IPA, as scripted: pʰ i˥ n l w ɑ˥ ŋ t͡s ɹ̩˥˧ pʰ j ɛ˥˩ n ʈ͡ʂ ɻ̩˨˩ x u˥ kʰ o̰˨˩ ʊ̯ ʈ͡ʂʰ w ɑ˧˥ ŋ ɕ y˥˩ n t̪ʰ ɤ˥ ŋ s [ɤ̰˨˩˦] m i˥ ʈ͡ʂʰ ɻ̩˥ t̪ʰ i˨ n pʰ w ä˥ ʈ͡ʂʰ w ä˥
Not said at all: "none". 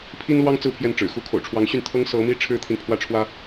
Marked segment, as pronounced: ɤ˧˥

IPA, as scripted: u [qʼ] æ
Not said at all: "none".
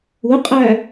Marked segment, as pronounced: qʼ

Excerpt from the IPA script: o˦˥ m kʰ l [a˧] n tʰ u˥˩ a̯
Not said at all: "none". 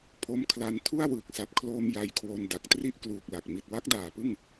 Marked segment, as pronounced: a˧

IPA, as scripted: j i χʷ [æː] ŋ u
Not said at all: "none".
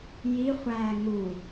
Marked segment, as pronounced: æː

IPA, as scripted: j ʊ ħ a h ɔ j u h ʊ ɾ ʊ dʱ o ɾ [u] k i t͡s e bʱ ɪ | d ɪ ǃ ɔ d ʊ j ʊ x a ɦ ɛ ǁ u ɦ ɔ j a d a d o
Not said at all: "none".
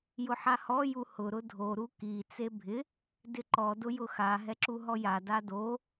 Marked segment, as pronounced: u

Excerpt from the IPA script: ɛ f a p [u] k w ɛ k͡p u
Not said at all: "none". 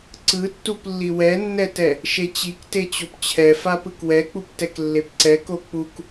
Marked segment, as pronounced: ɯ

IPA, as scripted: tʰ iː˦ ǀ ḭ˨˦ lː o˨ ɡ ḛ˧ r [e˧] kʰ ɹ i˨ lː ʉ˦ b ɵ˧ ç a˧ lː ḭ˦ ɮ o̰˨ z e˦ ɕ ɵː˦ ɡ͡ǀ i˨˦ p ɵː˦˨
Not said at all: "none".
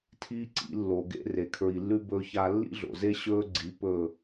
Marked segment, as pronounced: e˨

